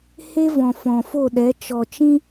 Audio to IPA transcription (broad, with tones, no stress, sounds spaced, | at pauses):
h e˦ v ɔ̃˨ f ɔ̃˨ f o˦˨ ɗ ɛ˨˦ t͡ʃ ɔ˨ t͡ʃ ĩ˦